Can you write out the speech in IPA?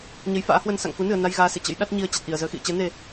ɲə˨˦jfa̰ː˧˥hwə˧n sa̰˧˨ŋku˨˦nɨ˧˩ə̯ na˧jɣaː˨˦ sḛ˧˨t͡ɕə̰˧˥j ɗa˦˥t̚ɲi˧ə̯ t͡ɕa˨˩t̚ʔi˧˩ə̯zəː˧xḭ˧˨ə̯ t͡ɕɛ˨˦ ne˨˩

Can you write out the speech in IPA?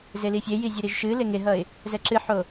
zelifʲeji zʲeɾiʒʃɨle ŋeɦʌɪ̯ | zɛǁɨħo

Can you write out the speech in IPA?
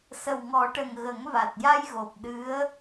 sə˨˩wŋɔ˨˩˦ʈə˨˩ŋ ɣə˨˩˦ŋva˨˩t̚ja˧jɣo˨˩p̚ ɗɨ˧˥ə̯

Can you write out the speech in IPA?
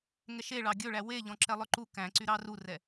ŋɛʃeɭɑ ɡʲɵɭæ weʎɔ̃ǁɛlˠœ ǃu kæ̃ǀy ɾɑrurɛ

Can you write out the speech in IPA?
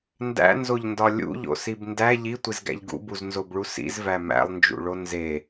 ndæ̰nzoʎndɒ lʲṵʎo̰sib ndæ ʎitʷizɡæ̰ʎ ɡṵbuznzobɭu sḭzvæ mæ̰lˠnd͡ʒṵɭo nze

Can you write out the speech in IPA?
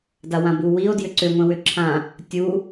dawãbuwio̯ djʏǀʏ ŋʷẽwʏǁʰã | tʲu

